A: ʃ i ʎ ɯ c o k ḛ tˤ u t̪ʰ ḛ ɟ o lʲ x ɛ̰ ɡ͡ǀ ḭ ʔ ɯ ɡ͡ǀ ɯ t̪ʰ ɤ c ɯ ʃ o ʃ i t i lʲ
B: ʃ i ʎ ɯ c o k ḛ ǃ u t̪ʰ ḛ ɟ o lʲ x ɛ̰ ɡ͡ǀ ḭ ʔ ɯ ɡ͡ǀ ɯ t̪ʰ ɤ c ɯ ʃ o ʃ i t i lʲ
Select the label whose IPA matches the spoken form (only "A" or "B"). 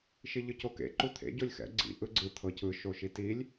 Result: B